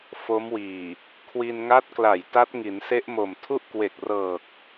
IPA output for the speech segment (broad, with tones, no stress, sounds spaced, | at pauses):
f o˦˥ m w iː˨˩ | kʰ w i˧ n ŋ a˦˥ t̚ k l a˨˩ j t a˦˥ t̚ ŋ i˩˦ n s e˦˥ ʔ m o˨˩ m tʰ u˥˩ ʔ k w e˨˩ k̚ r ɤː˨˩ k̚